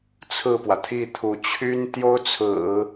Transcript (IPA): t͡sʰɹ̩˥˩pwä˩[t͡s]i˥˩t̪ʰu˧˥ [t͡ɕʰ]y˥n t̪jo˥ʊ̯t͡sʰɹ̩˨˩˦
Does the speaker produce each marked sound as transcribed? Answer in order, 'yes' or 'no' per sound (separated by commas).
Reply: no, yes